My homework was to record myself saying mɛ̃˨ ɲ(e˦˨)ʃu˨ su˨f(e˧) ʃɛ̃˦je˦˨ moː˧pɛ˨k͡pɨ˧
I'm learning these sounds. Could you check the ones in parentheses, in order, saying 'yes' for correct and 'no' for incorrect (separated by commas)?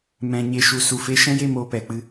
no, no